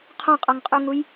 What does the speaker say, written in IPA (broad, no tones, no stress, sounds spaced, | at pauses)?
qʰ ɔ̃ qʼ ɔ ŋ qʼ u ŋ u j